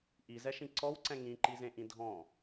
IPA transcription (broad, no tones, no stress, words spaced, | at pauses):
ʔizɛʃĩ ǀɔwǀɛ̃ ŋĩǃizẽʔĩ dʱɔ̃